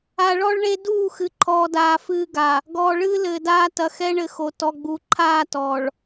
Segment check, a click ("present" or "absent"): present